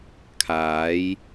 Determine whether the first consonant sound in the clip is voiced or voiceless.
voiceless